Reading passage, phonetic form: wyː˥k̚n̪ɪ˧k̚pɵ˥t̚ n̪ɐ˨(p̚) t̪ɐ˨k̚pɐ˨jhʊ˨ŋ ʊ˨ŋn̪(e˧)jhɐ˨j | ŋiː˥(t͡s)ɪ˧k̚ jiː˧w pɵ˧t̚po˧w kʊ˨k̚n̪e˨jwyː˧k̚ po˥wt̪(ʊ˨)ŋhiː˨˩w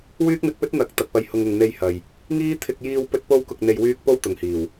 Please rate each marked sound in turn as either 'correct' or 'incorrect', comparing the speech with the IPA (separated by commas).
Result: incorrect, correct, incorrect, correct